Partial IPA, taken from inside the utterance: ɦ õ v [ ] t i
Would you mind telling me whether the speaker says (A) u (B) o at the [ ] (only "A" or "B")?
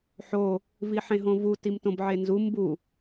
A